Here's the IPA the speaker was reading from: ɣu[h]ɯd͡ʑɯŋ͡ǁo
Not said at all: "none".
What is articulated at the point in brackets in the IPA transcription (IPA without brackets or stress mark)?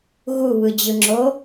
β